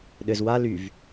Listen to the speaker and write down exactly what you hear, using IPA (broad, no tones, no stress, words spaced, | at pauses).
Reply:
ɗɘz wa lyv